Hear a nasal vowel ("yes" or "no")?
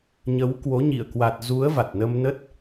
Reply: no